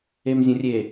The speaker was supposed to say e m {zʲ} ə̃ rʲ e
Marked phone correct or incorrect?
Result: correct